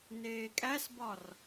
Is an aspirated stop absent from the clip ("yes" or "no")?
yes